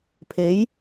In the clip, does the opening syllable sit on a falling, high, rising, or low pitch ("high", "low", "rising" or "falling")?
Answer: rising